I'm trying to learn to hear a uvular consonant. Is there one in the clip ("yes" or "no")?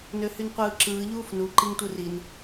yes